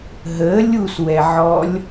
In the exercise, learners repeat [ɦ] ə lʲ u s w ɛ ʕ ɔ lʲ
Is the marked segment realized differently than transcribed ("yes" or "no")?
no